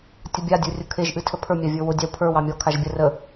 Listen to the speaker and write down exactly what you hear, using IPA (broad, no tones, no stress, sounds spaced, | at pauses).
tʲ ʊ bʲ a dʲ ə˞ rʲ ʊ kʰ e ʒ ʔ ɨ tʰ ə pʰ ə˞ mʲ a vʲ ə˞ w ʊ dʲ ɑ w pʰ ə˞ w ɑ mʲ ɔ kʰ a ʒ bʲ ə r ə